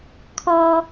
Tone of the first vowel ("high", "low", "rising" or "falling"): high